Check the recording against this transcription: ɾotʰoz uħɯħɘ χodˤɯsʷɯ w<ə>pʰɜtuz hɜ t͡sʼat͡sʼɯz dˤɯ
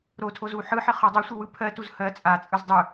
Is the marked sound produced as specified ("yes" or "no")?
no